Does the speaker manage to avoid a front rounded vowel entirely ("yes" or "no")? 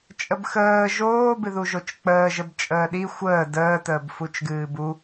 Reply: yes